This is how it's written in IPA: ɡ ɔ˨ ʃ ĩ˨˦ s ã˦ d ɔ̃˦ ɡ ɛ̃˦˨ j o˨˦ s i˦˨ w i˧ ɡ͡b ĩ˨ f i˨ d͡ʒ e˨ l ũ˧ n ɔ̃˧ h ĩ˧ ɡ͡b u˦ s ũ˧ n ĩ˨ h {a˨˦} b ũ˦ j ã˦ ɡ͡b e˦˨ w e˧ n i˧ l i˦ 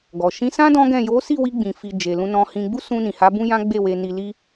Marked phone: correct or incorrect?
correct